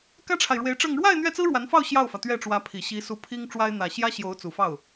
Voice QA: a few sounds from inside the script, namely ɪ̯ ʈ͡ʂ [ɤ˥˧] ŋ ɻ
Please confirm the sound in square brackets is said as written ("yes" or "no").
yes